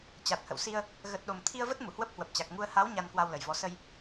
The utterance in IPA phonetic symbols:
t͡ɕ a˨˩ t̚ h ə̰˧˨ w s i˧ ə̯ | ɣ ə˨˩ t̚ ɗ o˨˩ m t̪ʰ i˧ ə̯ v ə˦˥ t̚ m u˧˩ h w ə˦˥ p̚ h w ə˨˩ p̚ t͡ɕ a˨˩ k̚ ŋ u˧ ə̯ h a˨˦ w ɲ a˧ n k w a˧ w l ə˨˩ j v ɔ˨˦ s ə˧ j

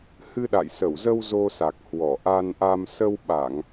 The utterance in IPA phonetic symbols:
h ɨ˧ ɗ a̰˧˨ j s ə˧˩ w z ə˧ w z o˧ s a˨˩ k̚ h w ɔ˧˩ ʔ a˧ n ʔ a˧ m s ə˧ w ɓ a˧˩˨ ŋ

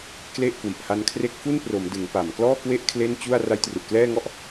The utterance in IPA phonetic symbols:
k l e˥˩ ʔ k w i˨˩ ʔ h a˧ n kʰ r e˦˥ k̚ f u˥˩ n p r o˩˦ m d ɯ˩˦ ŋ p a˨˩ m k l ɔː˥˩ k w e˥˩ ʔ kʰ l e˥˩ n t͡ɕ u˥˩ a̯ r a˦˥ j t r u˨˩ ʔ k l ɛː˥˩ ŋ ɔ˥˩ ʔ

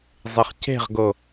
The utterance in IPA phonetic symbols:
zˤ e χ c e̤ ʁ ɡ o

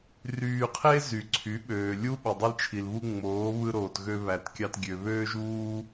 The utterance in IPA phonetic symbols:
r yː˧ qʰ e˦ z y˨ ǀʰ y˨˦ ɓ øː˨ lʲ u˦ ɓ o˨ dˤ i˧ l t͡ʃʰ i˨ l β u˧ ŋ͡m oː˨˦ β ɯ˧ ɾ oː˨ t ɣ ø˧ β æ˨ t kʲ ɑ˧ t ɡʲ ø˨ β øː˦ ʒ uː˦

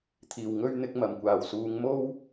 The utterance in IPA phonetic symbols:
t̪ʰ iː˨˩ w ŋ ɵ˥ ɥ n̪ ɪ˨˥ k̚ m ɐ˨˩ m kʷ aː˨˩ w s uː˨˧ ŋ m o˥ w

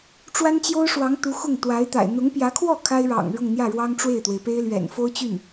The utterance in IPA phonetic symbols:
ʈ͡ʂ w a˥ n t͡ɕ j o˥ ʊ̯ ʂ w ɑ˧˥ ŋ t̪ u˧˥ x ʊ˥˩ ŋ t̪ w a˧˥ ɪ̯ t̪ a̰˨˩ ɪ̯ n̪ ʊ˧˥ ŋ p j ä˧˥ kʰ w ɔ˥˩ kʰ a˥ ɪ̯ ɻ ɑ̰˨˩ ŋ ɻ ʊ˥˧ ŋ n̪ j ä˥˩ ɻ w ɑ˥ ŋ ʈ͡ʂ w e˥˩ ɪ̯ t̪ w e˩ ɪ̯ p e˥ ɪ̯ l ɥ ɛ̰˨˩ n f o˥ ʊ̯ t͡ɕ y˥˩ n

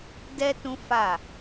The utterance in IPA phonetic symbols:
d ɛ˦ t ũ˦ f a˦˨

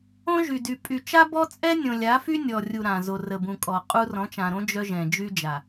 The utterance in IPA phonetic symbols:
õ˦ ʒ y˨ d y˨ pʼ y˨ t͡ʃ a˦ b ɔ˦ t͡sʼ ɛ˦ nʲ õ˨ lʲ a˨˦ f y˦ nʲ ɔ˨ rʲ u˨ ɾ ã˨ z o˨ r ə˨ b ũ˨ kʼ ɔ˨ qʼ u˦ r ɔ̃˨˦ t͡ʃ ã˨ ɾ õ˦ d͡ʒ œ˦ ʒ ɛ̃˨ d͡ʒ y˦ d͡ʒ a˨

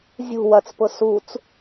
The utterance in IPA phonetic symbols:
zʲ ṳ w ɐ t͡s p ʊ s u t͡s

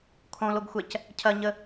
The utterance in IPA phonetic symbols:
kʰ õ l o ɡ xʷ ɛ c | cʰ ɐ ɲ ə

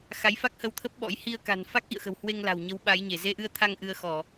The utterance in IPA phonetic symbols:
x a˨˦ j f a˦˥ k̚ h ə˧ w t̪ʰ ə˦˥ p̚ ɓ ɔ̰˧˥ j h i˧ ə̯ k a̤˨˩ n f a˦˥ k̚ ʔ ḭ˧˨ ə̯ x ə̤˨˩ w h w e˧ ŋ l a̤˨˩ w ɲ ə˨˦ w ɓ a˨˦ j ɲ e˧˩ z e˧ ʔ ɨ˧ ə̯ t̪ʰ a˧ ŋ ʔ ɨ˧ ə̯ x ɔ˧˩˨

